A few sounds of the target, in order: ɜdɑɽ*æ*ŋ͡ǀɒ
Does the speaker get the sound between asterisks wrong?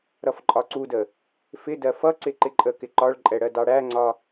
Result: no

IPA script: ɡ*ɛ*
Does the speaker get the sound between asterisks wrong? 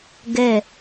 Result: no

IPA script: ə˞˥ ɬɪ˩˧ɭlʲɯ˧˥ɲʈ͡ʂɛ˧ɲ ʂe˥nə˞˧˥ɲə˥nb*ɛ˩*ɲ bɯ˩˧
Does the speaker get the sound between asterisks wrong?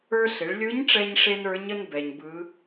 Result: no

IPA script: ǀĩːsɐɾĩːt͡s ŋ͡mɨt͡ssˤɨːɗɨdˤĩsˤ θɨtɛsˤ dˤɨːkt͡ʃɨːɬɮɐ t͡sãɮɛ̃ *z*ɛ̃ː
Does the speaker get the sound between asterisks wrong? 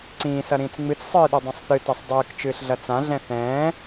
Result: yes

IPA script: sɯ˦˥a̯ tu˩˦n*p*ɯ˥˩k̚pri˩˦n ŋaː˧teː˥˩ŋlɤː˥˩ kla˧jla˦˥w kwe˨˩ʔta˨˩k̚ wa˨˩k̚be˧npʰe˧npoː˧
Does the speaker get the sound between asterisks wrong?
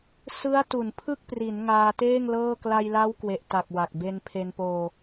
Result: yes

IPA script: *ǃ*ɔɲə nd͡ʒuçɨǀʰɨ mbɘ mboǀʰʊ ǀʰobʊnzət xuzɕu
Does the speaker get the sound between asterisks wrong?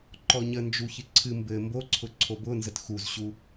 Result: no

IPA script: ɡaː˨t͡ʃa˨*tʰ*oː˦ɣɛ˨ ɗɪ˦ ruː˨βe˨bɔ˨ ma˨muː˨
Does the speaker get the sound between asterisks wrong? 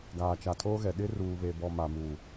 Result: no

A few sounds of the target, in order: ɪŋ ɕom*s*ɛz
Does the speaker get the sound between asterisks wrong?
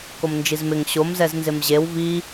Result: yes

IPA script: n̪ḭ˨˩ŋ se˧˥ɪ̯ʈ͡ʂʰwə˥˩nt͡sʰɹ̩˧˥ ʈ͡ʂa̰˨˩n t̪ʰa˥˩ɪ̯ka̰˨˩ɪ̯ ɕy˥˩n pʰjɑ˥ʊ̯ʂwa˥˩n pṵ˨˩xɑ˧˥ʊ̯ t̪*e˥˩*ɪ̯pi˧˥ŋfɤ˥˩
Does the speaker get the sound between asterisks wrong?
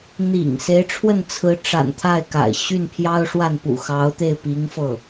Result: no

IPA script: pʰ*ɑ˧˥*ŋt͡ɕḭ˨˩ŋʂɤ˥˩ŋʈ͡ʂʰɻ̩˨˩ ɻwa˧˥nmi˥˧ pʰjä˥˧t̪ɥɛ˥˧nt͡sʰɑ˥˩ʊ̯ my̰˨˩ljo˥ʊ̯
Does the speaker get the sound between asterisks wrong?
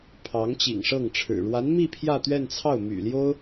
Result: no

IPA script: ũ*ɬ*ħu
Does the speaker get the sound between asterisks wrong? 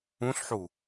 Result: no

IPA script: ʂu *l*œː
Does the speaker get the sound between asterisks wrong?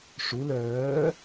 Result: no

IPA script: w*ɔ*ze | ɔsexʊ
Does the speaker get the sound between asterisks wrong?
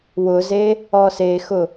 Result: yes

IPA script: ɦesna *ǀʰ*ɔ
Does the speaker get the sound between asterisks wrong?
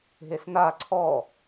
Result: no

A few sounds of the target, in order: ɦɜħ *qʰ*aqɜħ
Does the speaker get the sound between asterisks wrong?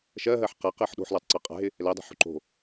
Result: yes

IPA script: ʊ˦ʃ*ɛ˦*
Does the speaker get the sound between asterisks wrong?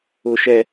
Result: no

